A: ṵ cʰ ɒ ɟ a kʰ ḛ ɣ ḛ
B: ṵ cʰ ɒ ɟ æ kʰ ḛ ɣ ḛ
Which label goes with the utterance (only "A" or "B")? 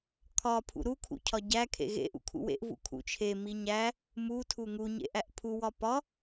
B